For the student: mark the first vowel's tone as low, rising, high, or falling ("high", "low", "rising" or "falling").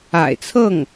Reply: low